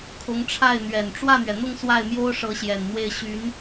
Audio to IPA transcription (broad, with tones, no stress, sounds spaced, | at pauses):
kʰ ʊ˧˥ ŋ ʈ͡ʂʰ a˥˩ ɪ̯ n̪ ɥ ɛ˨˩ n ʈ͡ʂ w ä˥˩ n̪ ɥ ɛ˩ n̪ ʊ˥˧ ŋ s w a˥˩ ɪ̯ m j o˥ ʊ̯ ʂ ɤ˧˥ ɕ j ɛ˨˩ n n̪ w e˥˩ ɪ̯ ɕ y˧˥ n